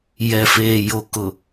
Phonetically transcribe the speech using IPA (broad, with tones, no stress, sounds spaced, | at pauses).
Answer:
j ɛ˨ f eː˨ j o˨ k ʊ˨